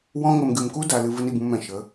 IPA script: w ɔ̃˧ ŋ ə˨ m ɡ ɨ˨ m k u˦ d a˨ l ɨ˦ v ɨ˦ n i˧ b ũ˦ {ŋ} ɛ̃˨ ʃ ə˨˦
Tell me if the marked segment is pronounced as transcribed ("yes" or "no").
no